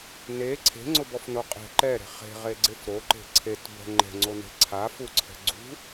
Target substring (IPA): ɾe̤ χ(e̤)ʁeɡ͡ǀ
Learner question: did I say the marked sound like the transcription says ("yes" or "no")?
yes